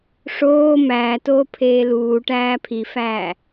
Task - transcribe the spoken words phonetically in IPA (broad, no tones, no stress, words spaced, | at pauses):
ʂoː mæːtoːpʰeː luːʈæː pʰifæː